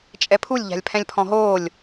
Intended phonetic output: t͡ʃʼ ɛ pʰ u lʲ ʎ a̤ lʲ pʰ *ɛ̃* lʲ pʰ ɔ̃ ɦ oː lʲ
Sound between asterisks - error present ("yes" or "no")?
no